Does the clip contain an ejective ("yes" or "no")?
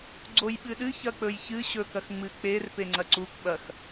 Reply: no